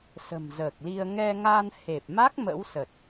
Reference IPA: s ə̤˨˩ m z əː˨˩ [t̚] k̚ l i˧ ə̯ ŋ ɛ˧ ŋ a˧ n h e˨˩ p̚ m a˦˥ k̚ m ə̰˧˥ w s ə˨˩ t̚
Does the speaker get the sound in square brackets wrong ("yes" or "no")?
yes